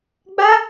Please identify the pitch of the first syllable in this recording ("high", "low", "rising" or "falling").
high